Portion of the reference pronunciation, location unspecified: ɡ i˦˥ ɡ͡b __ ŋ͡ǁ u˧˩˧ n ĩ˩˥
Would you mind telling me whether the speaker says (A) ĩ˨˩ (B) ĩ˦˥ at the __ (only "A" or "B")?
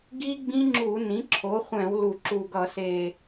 B